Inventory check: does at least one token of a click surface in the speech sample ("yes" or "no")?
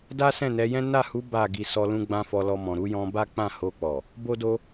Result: no